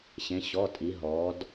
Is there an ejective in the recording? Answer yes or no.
yes